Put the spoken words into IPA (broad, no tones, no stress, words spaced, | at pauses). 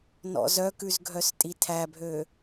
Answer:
nɔ̰zœkʉz ɡʱœstʼitʰæbʱø